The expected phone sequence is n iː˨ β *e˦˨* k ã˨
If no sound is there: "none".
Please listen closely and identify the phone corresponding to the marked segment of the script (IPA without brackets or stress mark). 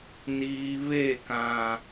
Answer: e˦˨